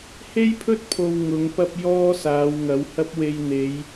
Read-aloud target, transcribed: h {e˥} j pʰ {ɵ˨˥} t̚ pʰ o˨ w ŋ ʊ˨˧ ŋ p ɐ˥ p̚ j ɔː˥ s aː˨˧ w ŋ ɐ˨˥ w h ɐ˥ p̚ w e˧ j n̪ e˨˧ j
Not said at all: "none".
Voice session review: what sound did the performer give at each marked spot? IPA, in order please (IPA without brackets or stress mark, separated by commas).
e˥, ɵ˥